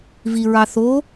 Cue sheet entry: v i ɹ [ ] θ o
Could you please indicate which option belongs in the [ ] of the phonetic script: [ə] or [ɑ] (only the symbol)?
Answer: ɑ